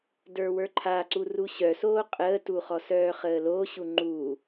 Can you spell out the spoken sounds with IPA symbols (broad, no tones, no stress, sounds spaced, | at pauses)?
d ə˞ w ə˞ ǃʰ a ǀ u r u ɕ œ s oː qʼ əː t u χ ɔ s œː χ əː l o ɕ u ŋ͡ǃ u